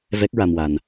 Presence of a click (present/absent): absent